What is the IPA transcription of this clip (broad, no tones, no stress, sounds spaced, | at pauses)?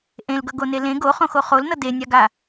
ʔ ẽ l ɡ ʌ ɡ o n e l ẽ ɡ o χ õ x o χ o l n ʌ d e nʲ a ɡ a